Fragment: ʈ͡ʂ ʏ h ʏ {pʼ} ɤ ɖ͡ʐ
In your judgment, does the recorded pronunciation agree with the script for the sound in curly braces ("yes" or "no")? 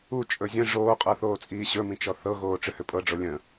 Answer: yes